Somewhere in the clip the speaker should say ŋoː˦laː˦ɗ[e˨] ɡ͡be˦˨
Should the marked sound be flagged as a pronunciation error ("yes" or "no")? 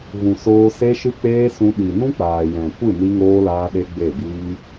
yes